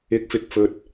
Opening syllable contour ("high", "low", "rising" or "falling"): rising